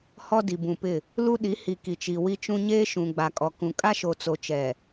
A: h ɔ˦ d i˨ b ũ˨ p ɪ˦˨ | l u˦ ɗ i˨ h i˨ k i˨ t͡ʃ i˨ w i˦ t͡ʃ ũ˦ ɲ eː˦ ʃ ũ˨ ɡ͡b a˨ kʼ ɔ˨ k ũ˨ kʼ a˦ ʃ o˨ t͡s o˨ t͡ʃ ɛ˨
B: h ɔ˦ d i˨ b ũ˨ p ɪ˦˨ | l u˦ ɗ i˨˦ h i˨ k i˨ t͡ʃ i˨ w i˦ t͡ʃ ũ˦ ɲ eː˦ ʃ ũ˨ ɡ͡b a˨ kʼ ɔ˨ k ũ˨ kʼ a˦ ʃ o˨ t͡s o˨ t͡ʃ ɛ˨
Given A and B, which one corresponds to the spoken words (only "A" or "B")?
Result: B